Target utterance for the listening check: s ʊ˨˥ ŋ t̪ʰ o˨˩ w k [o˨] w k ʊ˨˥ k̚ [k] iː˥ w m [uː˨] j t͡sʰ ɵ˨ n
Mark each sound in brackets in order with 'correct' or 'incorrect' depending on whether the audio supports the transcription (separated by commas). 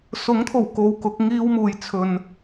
correct, incorrect, incorrect